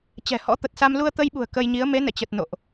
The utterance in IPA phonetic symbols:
t͡ɕ ɛ̤˨˩ h ɔ̰˧˥ t̪ ə˨˩ t̚ s a˧ m l u˧ ə̯ t̪ ə˧ j ɓ ṳ˨˩ ə̯ k ə˧ j ɲ i˨˦ ə̯ m e˨˦ n ɛ̰˧˨ t͡ɕ ə˨˩ t̚ n o̰˧˨ ʔ

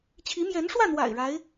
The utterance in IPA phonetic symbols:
t͡ɕʰ i˧˥ m j ɛ˧˥ n ʂ w ä˥˩ n̪ w a̰˨˩ ɪ̯ ɻ a˧˥ ɪ̯

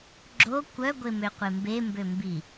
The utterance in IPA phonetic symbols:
ɡ͡ǁ o kʷ œ ɡʷ e m ø qʷ e m b e m b ø m b i

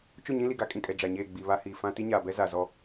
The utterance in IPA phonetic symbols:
t͡ʃ ʊ˦˨ ɲ ĩ˦ l i˨ ɡ a˦ kʼ ĩ˨ kʼ ɛ˨ d͡ʒ a˨ ɲ eː˦˨ ɡ͡b i˨ β a˦ h iː˨ f ã˦ t i˦ ɲ aː˨ b ɛ˦ z a˨ z ɔ˦

